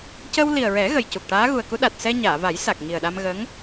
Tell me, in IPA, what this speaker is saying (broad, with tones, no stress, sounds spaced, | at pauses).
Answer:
c ə˧ w l i˨˩ ə̯ ɹ ɛ˨˩˦ ɣ ə˨˩ j c u˨˩ k̚ ʈ aː˧˥ ɣ u˨˩ ə̯ k u˧˥ ɗ a˨˩ t̚ s ɛ˧ ɲ aː˨˩˨ v a˨˩˦ j s a˨˩ k̚ ŋ i˨˩ ə̯ ɗ a˧ m ɣ ə˧˥ ŋ